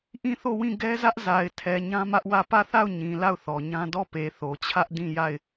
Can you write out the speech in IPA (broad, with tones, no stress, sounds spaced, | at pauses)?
ʔ ĩ˦˨ θ o˦˨ w ĩ˦˨ ɡ ɛ˦ z ä˦ ʔ z a˨ ɪ̯ tʰ ɛ˨ ɲ ã˦ m ä˦ ʔ w ä˦˨ p ä˦˨ θ a˦˨ ʊ̯ ɲ ĩ˨ l a˦˨ ʊ̯ θ ɔ˨ ɲ ã˦ d ɔ˦˨ p e˨ θ o˨ t͡ɕʰ ä˦ ʔ d ĩ˦˨ j a˦˨ ɪ̯